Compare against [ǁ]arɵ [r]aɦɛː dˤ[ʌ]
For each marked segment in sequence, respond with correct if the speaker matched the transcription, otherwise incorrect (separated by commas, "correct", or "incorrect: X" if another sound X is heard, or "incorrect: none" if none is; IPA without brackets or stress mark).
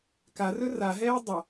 incorrect: k, correct, correct